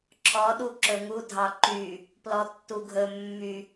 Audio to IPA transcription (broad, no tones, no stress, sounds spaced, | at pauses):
ǁʰ ɔ ɗ u ǁ ɵ ŋ u dʱ ɑ ǃ y | p l ɔ tː u ɡʱ ɵ mː y